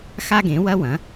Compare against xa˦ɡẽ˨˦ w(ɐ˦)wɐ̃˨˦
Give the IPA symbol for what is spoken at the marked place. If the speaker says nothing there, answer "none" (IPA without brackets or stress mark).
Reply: ɐ˦